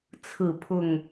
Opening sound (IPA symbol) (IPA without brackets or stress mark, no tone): t͡sʰ